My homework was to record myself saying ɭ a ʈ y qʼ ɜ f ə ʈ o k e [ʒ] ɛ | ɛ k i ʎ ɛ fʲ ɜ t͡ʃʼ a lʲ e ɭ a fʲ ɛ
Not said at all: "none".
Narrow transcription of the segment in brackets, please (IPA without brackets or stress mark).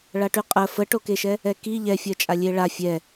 ʃ